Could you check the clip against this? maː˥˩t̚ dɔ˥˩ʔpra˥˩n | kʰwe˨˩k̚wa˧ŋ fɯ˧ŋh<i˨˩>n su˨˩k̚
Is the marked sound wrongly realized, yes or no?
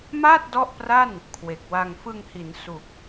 yes